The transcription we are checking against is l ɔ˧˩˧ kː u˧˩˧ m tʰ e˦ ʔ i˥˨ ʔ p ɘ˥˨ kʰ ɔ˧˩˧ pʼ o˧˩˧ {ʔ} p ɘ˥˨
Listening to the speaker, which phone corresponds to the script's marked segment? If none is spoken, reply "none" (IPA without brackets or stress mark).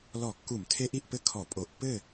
ʔ